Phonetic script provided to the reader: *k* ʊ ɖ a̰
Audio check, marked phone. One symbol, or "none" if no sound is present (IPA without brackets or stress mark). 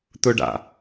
t̪